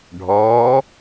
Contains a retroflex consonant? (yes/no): yes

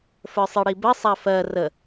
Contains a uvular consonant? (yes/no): no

